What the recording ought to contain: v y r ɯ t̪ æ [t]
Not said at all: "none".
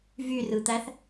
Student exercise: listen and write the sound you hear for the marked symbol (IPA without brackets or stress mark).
θ